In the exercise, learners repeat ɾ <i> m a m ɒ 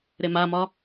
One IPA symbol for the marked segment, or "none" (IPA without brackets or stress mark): e